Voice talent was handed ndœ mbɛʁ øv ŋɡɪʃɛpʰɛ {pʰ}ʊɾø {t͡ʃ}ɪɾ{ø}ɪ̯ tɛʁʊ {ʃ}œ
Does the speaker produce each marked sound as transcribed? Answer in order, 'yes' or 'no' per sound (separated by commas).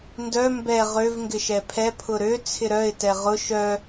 yes, no, no, yes